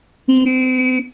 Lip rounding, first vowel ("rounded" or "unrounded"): rounded